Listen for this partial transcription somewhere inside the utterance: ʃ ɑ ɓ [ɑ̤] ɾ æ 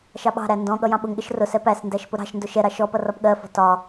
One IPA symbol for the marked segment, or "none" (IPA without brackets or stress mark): ɑ̤